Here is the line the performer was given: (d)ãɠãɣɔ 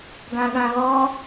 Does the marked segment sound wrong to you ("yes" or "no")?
yes